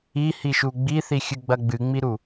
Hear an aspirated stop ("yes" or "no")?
no